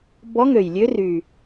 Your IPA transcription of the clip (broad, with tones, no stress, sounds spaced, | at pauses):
b ɔ˧˥ ŋ ø˨˩ j lʲ ø˧˥ r y˨˩